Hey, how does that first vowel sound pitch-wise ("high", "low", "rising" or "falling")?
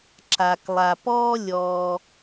low